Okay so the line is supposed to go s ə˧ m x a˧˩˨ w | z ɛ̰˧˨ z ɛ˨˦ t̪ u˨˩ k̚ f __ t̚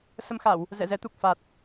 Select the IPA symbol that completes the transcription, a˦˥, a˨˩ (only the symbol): a˨˩